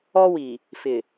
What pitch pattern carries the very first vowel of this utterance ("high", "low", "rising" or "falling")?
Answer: high